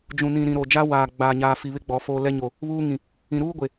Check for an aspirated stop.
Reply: absent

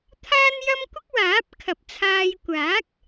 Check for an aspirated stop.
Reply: present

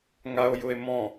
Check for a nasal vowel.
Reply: present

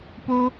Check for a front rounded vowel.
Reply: absent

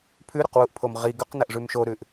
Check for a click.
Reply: absent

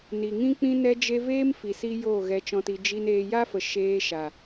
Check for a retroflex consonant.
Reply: absent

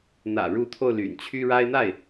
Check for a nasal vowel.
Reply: absent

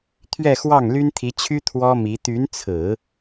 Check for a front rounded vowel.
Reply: present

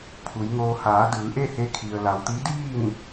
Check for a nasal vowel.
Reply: absent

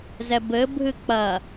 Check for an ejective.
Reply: absent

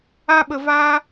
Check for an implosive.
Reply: present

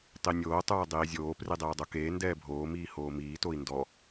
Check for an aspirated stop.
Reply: absent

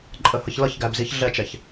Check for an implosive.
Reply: absent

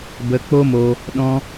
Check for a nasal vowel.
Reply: present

